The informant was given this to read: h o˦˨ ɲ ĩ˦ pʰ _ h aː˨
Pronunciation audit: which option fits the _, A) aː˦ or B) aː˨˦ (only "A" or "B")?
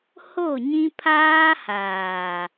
A